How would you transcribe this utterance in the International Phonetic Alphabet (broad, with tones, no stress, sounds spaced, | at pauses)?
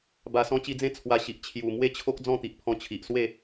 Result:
b a˨˩ s ɔ̃˧ t͡ɕ i˧ d͡z ẽ˦ t͡sʰ w a˧ ɕ i˨ ʔ t͡ɕʰ j u˨˩ m w e˥˧ t͡ɕʰ o˦ k̚ d͡z ɔ̃˥˧ t̪ i˨ ʔ pʰ ɔ̃˧ t͡ɕʰ i˨ ʔ s w e˥˧